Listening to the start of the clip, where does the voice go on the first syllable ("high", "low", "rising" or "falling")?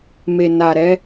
low